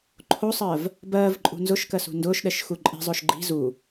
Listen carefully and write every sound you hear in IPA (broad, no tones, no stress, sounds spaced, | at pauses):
ǃʰ o sˤ ɜː v | b ɜː v ǃʼ ṳ n z ʊ ʃ k ɜ s ṳ n d ʊː ʃ ɗ ɛ ʃ x u ǃʼ i̤ zˤ ʊː ʃ ɡ͡ǃ i̤ z u